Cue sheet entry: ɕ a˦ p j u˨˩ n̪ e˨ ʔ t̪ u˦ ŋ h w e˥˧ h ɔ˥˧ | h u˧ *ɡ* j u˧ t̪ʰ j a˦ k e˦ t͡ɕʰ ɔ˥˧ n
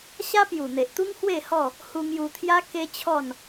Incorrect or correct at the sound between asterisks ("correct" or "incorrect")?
incorrect